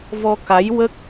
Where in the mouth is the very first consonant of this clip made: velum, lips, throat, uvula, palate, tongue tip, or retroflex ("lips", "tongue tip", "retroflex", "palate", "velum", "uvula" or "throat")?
lips